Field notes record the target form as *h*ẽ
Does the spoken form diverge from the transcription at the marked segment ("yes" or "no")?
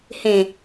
no